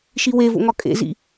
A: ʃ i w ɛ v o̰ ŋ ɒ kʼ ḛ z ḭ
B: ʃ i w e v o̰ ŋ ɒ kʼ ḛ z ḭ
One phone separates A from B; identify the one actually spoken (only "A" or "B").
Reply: B